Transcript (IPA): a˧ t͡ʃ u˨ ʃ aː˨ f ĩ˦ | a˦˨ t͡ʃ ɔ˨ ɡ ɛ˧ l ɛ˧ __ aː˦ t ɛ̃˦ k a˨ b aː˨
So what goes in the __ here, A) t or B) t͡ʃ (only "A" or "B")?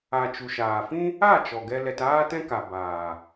A